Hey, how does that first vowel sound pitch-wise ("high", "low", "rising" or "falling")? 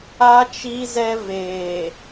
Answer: high